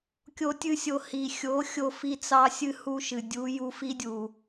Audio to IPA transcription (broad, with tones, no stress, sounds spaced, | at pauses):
kʲ o˦ tʲ ɨ˦ sʲ o˧ h i˨ xʲ o˨˦ xʲ o˦ f i˦ t͡s ɑ˦ sʲ ɨ˦ h u˦ ʃ ɨ˨ dʲ u˨˦ j u˧ f i˦ dʲ u˨